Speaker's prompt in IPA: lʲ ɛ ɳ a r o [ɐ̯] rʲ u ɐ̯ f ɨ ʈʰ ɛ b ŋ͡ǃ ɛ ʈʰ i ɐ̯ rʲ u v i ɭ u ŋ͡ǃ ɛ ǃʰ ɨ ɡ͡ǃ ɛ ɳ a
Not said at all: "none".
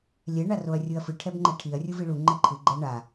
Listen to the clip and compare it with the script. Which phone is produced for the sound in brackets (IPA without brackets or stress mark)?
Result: ɐ̯